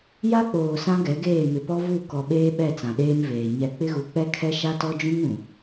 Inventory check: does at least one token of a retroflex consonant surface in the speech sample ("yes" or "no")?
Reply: no